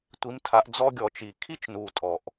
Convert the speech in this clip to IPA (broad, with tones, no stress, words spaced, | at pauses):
tʷi˨˦mtʰa˨˦ʔ d͡zɔ˦ɡʲɔ˧˩˧t͡ʃi˨˩ kʰi˥˩t͡ʃnu˨˩ tʼɔ˧˩˧ʔ